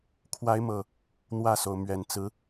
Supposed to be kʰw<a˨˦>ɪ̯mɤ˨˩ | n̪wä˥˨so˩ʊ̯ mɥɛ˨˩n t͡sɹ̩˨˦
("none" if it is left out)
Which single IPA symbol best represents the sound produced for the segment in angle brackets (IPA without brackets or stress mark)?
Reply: a˨˦